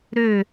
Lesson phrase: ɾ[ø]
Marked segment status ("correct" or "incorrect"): correct